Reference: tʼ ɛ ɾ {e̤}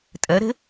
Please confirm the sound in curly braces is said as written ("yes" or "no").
yes